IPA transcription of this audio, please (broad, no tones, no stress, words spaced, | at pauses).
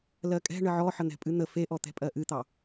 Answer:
lɜkʼɛ̤ ɳəʕɔħə n̪ɛ̤pʼɨn̪ə feʔɔ t̪ɛ̤pʼɜʔɨt̪ɑ